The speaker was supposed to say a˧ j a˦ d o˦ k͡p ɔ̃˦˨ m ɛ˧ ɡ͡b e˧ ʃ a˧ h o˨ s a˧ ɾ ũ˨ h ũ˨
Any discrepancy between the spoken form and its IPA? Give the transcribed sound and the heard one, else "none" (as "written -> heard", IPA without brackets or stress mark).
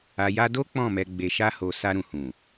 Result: e˧ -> e˨